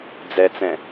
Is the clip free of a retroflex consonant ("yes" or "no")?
yes